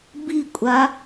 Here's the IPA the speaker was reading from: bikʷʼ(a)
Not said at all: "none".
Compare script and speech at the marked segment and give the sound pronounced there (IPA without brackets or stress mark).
a